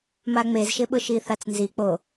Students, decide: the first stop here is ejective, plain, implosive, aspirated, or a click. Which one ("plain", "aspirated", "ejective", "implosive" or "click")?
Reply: implosive